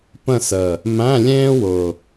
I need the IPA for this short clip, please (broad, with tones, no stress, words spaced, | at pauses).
pə̃˦˨sə˨˩ | mæ̃˧˥˧lʲẽː˥wʊ˨˩